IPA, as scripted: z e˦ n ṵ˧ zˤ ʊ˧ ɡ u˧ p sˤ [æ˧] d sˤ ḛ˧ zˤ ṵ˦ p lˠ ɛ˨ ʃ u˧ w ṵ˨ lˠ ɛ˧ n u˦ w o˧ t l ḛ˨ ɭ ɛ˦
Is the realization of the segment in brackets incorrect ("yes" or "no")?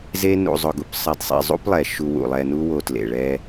yes